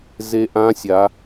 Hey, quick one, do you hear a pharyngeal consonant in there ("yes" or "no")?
no